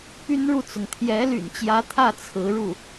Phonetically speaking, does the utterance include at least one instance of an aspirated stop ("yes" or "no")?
yes